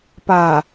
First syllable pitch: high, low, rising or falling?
low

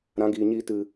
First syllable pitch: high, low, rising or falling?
rising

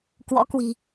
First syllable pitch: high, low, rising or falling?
rising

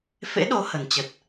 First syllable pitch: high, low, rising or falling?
rising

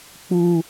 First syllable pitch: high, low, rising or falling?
high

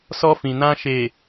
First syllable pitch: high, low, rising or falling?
high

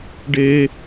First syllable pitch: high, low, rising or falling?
high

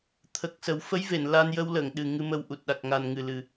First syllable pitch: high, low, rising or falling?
low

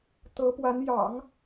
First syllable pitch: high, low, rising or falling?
rising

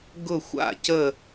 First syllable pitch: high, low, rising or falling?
falling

